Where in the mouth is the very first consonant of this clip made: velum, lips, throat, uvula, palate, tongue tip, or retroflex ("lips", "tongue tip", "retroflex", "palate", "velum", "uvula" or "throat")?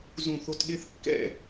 tongue tip